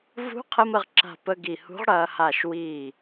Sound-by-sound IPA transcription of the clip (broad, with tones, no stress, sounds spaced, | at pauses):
v ṳ˧˥ qʰ ə˧ m ə˧ ʁ ǁ a̤˧˩ p ə˧ ɡ i˧˩ h ṳ˧˥ ʁ ɽ ɐː˧ h a˧˩ ʃ w iː˧˩